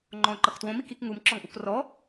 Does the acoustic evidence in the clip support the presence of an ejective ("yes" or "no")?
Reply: no